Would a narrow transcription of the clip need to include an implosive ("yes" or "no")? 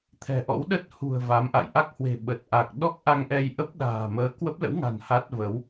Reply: yes